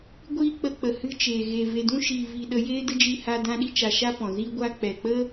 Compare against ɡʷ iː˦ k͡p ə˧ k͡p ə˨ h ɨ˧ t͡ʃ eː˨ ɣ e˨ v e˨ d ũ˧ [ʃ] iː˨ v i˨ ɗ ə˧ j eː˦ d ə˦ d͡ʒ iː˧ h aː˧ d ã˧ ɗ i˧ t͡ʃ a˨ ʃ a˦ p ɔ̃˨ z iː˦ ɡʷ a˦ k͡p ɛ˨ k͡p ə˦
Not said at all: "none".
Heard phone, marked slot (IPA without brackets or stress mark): ʃ